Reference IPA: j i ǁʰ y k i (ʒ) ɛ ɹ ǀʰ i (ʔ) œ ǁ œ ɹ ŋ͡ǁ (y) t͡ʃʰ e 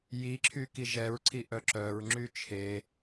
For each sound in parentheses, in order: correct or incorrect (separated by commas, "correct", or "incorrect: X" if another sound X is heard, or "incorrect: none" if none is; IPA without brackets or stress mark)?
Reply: correct, correct, correct